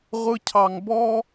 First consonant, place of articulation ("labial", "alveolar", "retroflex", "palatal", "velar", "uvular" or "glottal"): uvular